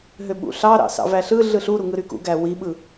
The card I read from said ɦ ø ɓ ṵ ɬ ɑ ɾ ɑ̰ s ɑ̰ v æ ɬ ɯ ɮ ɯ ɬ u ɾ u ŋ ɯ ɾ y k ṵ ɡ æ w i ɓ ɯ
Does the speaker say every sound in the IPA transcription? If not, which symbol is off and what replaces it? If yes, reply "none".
none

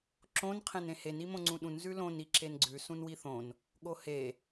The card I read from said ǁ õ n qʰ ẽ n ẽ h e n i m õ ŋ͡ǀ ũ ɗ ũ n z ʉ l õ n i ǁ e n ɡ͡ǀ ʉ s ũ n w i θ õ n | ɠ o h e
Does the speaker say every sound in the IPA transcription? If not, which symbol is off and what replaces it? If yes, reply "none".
none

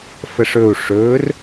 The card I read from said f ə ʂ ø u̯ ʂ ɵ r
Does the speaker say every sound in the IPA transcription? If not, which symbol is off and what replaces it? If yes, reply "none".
ø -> ɵ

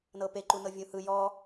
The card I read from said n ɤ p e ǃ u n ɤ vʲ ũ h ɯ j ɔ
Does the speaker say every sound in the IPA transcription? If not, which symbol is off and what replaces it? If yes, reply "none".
none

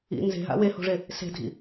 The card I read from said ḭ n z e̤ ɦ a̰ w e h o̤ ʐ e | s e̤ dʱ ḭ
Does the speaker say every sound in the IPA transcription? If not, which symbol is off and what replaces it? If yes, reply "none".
none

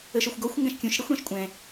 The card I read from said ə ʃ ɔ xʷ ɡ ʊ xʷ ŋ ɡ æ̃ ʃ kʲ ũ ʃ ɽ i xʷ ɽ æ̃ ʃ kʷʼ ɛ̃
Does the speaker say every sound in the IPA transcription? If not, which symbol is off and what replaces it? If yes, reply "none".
ʊ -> ɔ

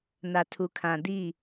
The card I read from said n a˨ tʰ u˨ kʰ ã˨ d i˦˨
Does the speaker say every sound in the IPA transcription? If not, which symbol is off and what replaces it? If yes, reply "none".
none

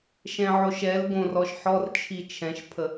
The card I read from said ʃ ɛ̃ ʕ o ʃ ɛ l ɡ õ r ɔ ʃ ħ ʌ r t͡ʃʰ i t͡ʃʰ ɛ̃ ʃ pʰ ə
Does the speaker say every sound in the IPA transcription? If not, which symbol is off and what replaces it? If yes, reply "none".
ʌ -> ɔ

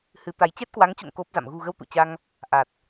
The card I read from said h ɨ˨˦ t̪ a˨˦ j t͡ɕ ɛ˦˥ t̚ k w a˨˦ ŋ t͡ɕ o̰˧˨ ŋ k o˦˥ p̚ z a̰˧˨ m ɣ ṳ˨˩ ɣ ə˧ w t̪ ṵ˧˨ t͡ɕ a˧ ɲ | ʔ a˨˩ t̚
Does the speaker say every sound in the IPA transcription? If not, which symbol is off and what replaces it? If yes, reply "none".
ɲ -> ŋ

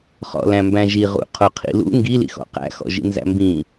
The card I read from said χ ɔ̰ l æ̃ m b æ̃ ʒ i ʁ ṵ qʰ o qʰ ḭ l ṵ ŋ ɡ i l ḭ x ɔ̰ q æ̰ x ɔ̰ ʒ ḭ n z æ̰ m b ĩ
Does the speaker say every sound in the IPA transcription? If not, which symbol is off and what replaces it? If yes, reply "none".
none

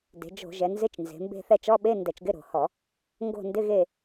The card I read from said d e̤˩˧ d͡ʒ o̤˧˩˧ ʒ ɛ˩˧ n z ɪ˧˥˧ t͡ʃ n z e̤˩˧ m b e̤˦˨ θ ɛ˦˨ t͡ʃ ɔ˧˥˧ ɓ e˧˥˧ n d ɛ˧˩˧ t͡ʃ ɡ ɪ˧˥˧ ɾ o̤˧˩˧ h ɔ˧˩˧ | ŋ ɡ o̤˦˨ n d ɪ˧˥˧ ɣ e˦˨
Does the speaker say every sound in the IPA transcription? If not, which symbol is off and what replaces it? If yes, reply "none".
none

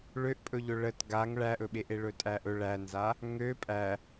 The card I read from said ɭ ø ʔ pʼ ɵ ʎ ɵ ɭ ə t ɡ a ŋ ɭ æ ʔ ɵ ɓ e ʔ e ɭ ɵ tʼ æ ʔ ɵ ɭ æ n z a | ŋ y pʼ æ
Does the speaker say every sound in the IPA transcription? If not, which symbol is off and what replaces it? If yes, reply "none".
y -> ø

